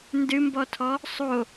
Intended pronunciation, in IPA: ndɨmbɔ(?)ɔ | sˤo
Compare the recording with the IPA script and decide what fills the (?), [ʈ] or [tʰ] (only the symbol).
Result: tʰ